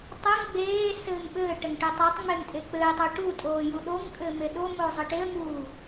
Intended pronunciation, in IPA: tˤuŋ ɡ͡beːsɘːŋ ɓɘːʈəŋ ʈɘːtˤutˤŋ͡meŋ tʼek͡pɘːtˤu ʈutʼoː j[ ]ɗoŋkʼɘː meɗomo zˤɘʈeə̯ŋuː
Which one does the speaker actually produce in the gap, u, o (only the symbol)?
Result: u